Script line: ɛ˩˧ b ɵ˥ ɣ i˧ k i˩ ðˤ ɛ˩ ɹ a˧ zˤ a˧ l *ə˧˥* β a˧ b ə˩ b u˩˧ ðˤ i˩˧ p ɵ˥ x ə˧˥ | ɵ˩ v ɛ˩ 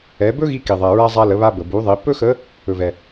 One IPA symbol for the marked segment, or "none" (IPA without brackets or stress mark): ə˩˧